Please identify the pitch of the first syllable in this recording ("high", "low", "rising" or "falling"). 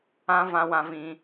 high